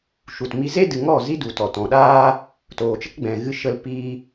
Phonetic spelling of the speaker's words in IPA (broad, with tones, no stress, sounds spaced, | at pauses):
ʃ u˨ t m i˧ z e˦ d ɨ˨ ŋ ɔ˦˨ z i˦ d u˨ t ɔ˨ t ɔ̃˨ ɗ aː˦ | t oː˨ t͡ʃ ə˦ k ɡ͡b ɛ̃˨ ɣ ɨ˧ ʃ ə˧ l p iː˦